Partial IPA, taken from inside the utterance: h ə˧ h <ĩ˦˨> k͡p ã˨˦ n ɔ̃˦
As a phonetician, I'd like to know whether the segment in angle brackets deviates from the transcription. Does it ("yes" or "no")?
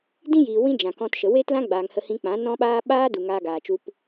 yes